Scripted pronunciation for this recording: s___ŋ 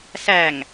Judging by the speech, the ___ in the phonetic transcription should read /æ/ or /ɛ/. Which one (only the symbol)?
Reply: æ